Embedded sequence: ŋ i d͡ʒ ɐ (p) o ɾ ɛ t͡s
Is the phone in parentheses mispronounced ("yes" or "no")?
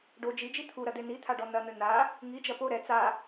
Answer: no